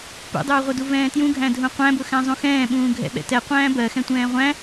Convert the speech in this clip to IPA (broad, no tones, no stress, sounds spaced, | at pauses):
p ṵ dˤ uː ʁʷ ʌ d u v ɛ̃ː t j ũ ɡʱ æ̃ dʱ ũ qʷ æ̃ b ʊ x æ̃ zˤ ũ x ɛ̃ː ɓ ũː ɡʱ ɛ̰ ɓ ɛ̰ t ɛ qʷ æ̃ː b ɜ x ɛ̃ tʷ ɛ̃ː ʁʷ æ̃